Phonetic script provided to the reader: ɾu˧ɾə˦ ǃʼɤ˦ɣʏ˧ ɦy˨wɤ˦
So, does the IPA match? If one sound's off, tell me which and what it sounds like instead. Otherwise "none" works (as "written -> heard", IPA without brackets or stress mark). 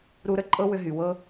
ɣ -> w